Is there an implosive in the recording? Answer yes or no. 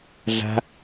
no